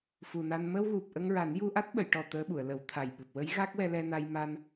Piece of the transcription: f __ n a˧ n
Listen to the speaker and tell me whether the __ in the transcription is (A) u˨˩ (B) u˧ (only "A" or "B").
A